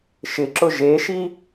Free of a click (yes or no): no